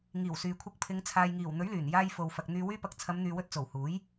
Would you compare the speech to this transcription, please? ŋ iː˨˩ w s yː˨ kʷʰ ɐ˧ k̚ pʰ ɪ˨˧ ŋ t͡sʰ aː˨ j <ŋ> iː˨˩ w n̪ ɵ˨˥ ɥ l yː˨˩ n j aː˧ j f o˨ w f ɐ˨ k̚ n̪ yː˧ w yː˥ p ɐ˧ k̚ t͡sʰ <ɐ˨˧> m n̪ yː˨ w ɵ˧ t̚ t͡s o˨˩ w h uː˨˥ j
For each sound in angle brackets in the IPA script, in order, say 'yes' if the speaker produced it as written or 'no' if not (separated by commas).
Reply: yes, yes